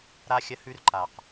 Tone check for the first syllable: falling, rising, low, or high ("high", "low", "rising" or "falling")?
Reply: high